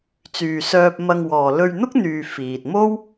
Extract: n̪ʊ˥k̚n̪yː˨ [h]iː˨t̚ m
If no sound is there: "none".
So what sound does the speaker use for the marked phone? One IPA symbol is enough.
f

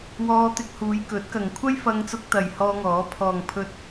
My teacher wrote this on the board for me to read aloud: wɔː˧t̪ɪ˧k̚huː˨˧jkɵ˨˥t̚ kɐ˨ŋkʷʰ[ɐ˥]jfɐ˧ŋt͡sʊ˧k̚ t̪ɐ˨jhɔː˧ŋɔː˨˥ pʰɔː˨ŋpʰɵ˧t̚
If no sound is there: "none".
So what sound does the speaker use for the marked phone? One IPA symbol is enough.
ɐ˥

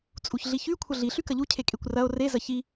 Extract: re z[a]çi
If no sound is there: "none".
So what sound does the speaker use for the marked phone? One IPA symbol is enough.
ɐ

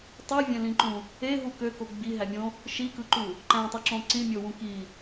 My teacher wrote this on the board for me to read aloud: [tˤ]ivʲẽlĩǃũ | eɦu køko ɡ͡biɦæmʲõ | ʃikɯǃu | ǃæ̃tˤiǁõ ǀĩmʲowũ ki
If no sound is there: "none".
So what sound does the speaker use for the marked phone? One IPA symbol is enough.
tˤ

